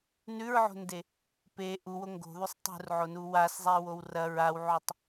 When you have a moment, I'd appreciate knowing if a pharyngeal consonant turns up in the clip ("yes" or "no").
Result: yes